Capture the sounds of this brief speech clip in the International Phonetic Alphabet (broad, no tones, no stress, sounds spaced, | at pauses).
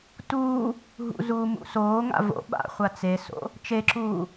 t uː | ɦ ṵ z uː m ṵ s oː ŋ a̰ v o̰ ɓ a̰ χʷ a t͡s e s o̰ | t͡ʃ e ǁ uː